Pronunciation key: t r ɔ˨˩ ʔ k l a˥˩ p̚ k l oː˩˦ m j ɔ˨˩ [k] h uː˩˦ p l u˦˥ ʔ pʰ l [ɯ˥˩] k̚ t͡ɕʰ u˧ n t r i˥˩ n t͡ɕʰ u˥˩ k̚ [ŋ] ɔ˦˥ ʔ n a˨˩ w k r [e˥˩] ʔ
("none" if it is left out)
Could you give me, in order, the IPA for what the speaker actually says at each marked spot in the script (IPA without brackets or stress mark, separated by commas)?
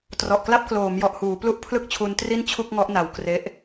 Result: ʔ, ɯ˥˩, ŋ, e˦˥